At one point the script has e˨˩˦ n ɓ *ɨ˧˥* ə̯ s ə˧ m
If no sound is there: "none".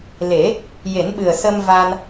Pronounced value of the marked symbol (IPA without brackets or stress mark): ɨ˨˩